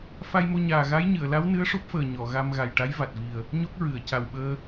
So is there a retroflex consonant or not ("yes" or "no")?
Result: yes